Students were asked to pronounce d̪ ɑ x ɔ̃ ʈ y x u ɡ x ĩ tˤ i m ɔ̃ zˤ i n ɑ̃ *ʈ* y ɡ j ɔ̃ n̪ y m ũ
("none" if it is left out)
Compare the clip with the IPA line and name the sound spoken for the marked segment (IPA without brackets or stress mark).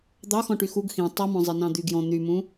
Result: d̪